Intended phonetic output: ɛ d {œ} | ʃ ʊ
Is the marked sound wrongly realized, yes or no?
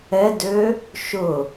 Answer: yes